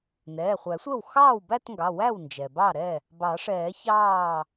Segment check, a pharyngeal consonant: absent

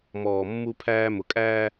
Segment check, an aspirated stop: present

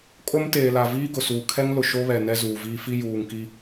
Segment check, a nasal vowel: absent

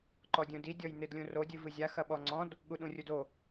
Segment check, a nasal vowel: present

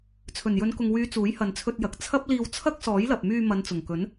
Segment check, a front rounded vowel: present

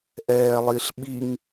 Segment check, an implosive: present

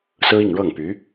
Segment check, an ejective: absent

